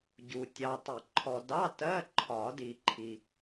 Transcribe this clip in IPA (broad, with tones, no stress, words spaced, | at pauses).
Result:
ɟu˨ tʲɑ˨tˤɪ˨˩˦ ǃʰɔ˨dɑ˧˥˧ tɜ˧˥˧ǃʰɒ˨˩˦di˨ ǃʰi˨